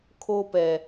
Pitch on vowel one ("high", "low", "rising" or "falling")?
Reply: high